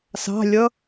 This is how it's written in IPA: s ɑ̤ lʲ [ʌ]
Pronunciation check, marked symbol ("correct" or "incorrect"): correct